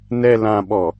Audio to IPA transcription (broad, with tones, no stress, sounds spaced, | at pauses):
n ɛ˨ l ã˨ ɓ ɔ˨